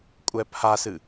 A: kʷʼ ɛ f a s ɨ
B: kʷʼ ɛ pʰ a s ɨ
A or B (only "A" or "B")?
B